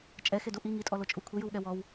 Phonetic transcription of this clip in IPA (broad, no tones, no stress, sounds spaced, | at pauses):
t͡ʃʼ ɛ x e d u ʔ i ŋ i tʼ ɔ l o t͡ʃʼ u kʷʰ i j ɯ w ɠ ɛ w ɔ w